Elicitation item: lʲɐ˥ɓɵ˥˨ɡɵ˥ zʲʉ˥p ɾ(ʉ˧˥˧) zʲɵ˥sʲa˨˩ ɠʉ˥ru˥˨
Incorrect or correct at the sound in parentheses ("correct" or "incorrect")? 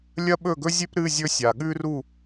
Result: incorrect